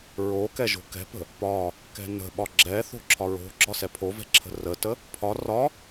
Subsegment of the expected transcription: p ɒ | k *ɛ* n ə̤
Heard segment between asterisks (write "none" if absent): ɛ̤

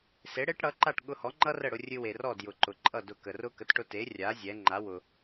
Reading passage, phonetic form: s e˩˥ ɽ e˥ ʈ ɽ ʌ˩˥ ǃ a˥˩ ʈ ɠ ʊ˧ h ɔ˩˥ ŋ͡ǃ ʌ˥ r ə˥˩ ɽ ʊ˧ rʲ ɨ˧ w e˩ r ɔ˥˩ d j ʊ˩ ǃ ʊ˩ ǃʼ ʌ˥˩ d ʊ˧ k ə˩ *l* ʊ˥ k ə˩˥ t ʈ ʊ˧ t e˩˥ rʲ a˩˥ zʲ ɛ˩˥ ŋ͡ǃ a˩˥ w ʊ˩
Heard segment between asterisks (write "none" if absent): r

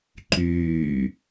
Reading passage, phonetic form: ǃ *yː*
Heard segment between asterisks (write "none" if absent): yː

